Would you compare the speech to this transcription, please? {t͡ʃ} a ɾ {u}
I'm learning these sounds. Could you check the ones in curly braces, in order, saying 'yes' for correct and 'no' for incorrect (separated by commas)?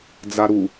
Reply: no, yes